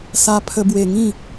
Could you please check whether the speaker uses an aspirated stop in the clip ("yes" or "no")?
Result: yes